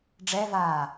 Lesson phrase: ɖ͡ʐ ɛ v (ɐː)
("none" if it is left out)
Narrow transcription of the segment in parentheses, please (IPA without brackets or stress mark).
aː